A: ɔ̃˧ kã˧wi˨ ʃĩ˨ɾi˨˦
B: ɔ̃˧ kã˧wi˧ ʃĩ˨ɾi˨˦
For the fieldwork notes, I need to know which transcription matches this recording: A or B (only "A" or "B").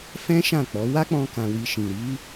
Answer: B